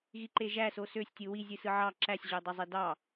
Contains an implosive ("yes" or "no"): no